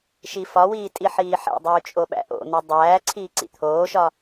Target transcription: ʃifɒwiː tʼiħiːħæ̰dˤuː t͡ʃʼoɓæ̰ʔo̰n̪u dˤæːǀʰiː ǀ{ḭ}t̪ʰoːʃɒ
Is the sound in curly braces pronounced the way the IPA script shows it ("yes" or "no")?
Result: yes